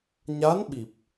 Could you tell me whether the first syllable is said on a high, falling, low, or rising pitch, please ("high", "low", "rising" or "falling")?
rising